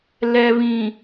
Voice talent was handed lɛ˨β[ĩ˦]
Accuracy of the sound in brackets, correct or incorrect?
incorrect: ĩ˨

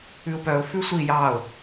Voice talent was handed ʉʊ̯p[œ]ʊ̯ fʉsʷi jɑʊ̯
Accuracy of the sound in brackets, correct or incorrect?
correct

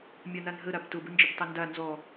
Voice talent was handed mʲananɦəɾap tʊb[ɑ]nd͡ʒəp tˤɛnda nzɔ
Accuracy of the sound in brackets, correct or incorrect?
incorrect: ə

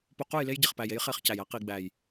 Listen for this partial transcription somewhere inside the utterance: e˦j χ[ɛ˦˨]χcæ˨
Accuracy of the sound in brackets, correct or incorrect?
incorrect: e˦˨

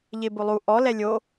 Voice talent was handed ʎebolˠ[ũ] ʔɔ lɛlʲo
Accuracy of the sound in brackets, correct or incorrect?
incorrect: u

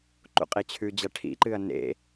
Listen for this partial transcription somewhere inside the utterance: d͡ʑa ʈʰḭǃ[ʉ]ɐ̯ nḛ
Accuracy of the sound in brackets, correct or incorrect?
incorrect: ɨ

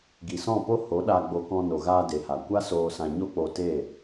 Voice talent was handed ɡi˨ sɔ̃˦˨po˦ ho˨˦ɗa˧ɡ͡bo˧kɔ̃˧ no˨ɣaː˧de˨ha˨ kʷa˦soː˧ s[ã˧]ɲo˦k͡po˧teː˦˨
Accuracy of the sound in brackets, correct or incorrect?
correct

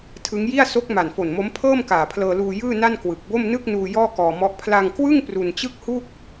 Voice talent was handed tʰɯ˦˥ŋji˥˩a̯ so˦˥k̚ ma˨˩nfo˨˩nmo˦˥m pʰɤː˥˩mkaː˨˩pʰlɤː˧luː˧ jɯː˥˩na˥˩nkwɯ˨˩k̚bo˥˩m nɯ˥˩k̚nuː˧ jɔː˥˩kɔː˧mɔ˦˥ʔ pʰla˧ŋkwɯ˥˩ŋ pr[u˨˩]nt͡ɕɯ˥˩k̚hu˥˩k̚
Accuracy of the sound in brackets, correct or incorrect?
incorrect: u˧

